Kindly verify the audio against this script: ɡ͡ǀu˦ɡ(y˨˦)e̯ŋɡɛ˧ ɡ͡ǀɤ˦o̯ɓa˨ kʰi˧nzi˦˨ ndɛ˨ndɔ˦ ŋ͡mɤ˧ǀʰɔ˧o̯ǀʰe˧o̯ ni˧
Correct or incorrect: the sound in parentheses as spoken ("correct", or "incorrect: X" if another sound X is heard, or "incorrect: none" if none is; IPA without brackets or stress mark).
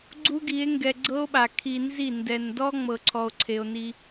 incorrect: i˨˦